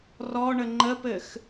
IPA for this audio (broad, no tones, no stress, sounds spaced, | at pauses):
r ɔ ɳ ə ŋ͡ǃ ə p ɘ x